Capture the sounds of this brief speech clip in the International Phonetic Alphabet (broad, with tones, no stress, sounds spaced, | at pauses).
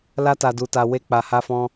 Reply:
l a˧ t a˨ d u˨ t a˨ w e˧ k͡p a˨ h a˧ f ɔ̃˧